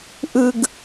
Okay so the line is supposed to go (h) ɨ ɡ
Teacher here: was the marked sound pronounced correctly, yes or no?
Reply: no